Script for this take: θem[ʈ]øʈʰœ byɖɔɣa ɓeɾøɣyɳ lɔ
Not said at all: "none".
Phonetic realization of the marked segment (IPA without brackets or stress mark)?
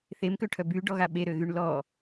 k